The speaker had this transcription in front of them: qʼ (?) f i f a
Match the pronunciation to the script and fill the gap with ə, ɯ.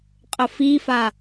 ə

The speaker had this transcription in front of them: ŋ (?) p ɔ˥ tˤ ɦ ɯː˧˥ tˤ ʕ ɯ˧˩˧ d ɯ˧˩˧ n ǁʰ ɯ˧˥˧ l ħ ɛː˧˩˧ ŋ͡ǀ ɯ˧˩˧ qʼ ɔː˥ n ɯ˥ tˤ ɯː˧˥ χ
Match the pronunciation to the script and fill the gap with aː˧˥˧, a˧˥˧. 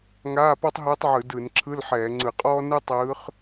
aː˧˥˧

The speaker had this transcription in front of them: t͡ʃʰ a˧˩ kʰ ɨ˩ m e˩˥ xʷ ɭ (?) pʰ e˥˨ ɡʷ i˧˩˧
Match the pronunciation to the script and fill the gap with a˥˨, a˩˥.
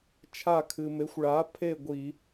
a˩˥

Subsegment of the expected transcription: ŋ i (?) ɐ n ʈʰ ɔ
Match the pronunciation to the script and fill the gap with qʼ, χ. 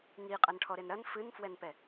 qʼ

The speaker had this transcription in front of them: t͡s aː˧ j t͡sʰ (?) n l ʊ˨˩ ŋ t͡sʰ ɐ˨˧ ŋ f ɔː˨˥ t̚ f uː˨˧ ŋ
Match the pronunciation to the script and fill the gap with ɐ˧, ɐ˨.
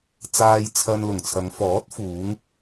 ɐ˧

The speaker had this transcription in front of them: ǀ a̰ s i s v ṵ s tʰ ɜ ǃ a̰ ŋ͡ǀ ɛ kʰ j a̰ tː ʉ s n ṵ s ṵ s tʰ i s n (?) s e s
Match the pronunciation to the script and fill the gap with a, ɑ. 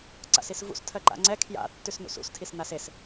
a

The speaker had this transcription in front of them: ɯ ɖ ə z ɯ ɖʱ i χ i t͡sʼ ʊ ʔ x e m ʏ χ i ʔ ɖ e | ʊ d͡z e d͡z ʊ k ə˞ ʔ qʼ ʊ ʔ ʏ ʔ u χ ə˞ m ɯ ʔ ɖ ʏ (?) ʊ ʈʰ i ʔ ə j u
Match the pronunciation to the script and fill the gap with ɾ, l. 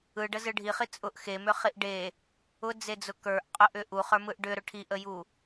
ɾ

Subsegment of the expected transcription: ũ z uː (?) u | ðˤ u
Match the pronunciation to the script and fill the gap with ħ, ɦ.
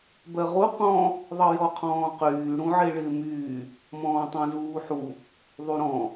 ħ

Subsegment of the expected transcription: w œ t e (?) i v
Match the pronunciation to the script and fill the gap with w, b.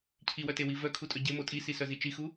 w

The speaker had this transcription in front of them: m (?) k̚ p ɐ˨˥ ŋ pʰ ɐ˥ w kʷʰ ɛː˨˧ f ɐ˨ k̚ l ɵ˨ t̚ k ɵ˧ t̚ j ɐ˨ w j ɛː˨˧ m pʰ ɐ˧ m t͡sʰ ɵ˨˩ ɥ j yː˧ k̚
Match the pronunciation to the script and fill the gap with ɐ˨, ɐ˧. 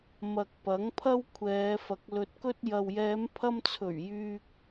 ɐ˨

